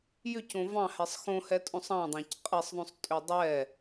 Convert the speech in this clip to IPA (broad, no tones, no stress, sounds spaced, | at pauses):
j ʏ c õ v ɑ̃ h ɛ sˤ x õ h ɛ tʼ õ sˤ ɑ̃ dˤ ɑ̃ c qʼ ɛ sˤ ðˤ õ sˤ tʼ ʏ dˤ ɛ